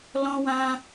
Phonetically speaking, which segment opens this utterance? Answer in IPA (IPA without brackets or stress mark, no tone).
l